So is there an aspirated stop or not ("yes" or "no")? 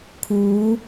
yes